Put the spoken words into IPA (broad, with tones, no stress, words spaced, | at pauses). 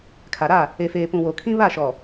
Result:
kʰa˨ɾa˦˨ | e˨feː˨pũ˨ wo˨kʰĩ˦ βa˦˨ʃɔ˨